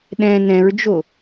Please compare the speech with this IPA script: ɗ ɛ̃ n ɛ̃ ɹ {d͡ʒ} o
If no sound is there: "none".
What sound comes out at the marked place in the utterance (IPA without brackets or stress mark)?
d͡ʒ